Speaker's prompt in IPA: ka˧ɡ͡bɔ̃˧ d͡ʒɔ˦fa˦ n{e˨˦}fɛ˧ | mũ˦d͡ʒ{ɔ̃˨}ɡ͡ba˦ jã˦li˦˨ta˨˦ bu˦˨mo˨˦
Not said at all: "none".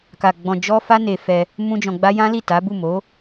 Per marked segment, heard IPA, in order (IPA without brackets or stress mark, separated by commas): e˧, ɔ̃˧